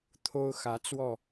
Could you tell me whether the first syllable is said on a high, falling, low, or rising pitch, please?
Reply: high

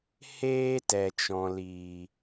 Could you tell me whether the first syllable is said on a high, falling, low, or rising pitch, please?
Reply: high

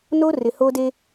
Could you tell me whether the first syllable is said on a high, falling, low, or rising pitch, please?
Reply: high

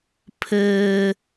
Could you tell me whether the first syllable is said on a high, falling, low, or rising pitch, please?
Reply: high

